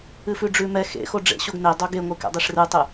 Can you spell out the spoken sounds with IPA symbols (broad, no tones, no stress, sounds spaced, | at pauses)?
ɨ f ʉ ɖ͡ʐ ʉ m ɛ x ḛ x o ɖ͡ʐ ḛ ɕ o ɡ n e dˤ o ɡ e ŋʷ ɨ k ɛ̰ dˤ e ʂ r ɨ tˤ ɨ